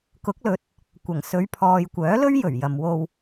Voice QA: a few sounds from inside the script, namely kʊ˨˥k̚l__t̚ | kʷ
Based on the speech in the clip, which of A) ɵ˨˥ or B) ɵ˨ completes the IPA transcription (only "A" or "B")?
A